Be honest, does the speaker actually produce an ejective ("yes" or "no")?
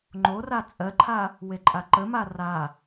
yes